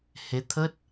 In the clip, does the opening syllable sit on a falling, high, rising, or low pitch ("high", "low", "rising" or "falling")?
rising